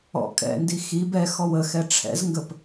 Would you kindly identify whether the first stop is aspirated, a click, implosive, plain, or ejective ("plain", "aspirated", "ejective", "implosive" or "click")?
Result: ejective